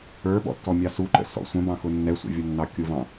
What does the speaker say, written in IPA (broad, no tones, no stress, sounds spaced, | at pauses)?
ə˞ ɓ ɔ̰ tː ɔ mʲ ɑ s u ǃ ə̰ s ɔ̰ sʷ ə̃ b ɑ̃ x ʊ nː ɛ sʷ ə̰ vʲ ʌ nː ɑ kʲ ʊ v ɑ̃